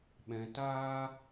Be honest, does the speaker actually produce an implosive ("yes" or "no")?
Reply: yes